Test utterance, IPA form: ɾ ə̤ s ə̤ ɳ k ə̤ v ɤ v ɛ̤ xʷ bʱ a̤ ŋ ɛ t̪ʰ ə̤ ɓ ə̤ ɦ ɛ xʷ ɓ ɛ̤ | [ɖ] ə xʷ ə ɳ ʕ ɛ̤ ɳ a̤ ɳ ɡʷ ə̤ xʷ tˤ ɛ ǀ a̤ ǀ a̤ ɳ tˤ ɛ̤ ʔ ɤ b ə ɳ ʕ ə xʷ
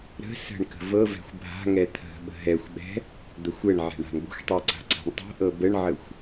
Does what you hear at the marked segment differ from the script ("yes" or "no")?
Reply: yes